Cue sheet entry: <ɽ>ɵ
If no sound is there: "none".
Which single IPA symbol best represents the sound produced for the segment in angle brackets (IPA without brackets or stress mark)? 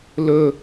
l